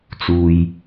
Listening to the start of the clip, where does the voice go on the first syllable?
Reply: low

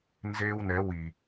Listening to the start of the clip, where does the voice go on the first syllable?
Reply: high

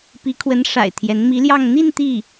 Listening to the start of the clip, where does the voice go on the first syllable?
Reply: rising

